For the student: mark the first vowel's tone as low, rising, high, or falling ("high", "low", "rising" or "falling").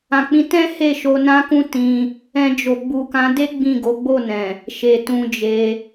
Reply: low